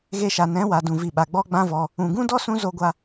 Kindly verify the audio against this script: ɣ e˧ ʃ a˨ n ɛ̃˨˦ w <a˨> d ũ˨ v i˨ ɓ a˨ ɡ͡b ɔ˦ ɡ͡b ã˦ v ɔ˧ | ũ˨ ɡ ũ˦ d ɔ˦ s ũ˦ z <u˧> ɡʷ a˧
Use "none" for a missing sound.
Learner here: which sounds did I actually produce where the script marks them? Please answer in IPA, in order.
a˨, o˧

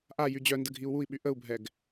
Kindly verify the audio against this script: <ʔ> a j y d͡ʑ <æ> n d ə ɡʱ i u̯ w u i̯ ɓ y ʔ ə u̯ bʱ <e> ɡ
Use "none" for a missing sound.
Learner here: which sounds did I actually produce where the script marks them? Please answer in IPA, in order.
ʔ, œ, ɛ

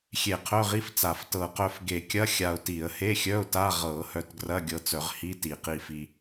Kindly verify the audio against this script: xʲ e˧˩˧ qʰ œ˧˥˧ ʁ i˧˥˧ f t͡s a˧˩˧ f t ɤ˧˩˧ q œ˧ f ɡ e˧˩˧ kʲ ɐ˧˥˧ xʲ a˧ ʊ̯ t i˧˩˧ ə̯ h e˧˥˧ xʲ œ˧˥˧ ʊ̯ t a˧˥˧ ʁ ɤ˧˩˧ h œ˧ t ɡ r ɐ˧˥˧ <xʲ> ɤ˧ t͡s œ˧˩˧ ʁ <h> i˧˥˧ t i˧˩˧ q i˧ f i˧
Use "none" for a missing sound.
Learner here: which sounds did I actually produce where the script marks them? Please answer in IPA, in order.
ɡʲ, h

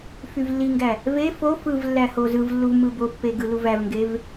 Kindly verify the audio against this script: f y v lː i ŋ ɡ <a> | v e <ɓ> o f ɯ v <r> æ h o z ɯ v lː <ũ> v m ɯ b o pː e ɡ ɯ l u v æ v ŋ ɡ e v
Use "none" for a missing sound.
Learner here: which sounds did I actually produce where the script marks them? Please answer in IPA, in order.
æ, f, lː, u

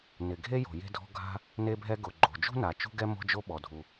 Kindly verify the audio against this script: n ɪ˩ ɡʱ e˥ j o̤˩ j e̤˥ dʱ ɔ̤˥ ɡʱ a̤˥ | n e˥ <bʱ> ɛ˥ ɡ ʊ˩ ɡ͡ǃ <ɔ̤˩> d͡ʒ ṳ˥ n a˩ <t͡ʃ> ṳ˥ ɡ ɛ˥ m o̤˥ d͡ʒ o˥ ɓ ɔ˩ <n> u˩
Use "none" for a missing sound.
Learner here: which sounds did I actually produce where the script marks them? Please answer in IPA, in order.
bʱ, o̤˩, t͡ʃ, dʱ

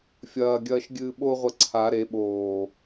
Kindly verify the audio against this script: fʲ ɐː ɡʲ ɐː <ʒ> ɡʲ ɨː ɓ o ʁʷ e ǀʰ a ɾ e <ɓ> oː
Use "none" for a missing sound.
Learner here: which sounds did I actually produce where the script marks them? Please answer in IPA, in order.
ʃ, ɓ

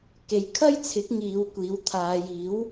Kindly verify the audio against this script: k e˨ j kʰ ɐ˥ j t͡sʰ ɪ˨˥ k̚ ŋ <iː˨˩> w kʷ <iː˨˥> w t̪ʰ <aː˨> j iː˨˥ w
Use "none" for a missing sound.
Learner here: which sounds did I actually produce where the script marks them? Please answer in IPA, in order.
iː˨˧, iː˨˥, aː˨

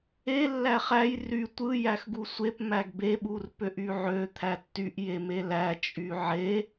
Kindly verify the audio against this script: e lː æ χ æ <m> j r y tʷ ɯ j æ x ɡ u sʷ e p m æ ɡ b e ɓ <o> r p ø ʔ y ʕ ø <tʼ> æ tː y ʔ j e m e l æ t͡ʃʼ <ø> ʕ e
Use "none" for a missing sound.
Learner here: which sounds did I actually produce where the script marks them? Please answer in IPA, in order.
none, u, t̪ʰ, y

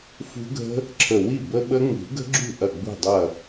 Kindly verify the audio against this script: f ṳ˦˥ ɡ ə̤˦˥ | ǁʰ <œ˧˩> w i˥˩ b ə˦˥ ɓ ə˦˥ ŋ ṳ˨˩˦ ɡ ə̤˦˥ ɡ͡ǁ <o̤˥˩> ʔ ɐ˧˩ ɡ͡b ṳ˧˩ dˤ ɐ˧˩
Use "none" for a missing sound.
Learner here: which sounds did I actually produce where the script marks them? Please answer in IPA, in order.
ə˧˩, ṳ˥˩

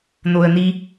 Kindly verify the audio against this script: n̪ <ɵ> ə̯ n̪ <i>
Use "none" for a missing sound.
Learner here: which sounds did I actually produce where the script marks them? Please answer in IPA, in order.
o, i

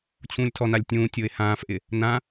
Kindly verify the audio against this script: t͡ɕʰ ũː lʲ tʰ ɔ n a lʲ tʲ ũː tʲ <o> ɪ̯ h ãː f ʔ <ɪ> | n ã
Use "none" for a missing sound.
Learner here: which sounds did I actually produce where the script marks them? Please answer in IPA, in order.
o, ɪ

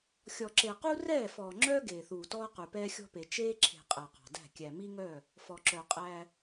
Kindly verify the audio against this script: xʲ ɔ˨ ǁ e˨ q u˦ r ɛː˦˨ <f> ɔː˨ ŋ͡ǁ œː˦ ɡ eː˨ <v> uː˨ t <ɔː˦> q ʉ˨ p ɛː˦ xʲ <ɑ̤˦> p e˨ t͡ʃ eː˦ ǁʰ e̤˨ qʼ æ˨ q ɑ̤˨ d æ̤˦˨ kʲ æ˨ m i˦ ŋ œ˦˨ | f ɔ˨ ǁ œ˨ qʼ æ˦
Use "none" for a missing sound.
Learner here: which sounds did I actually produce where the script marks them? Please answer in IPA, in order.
f, θ, ɔː˦, ɔ̤˦

